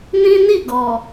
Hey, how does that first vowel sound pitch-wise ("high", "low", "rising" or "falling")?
high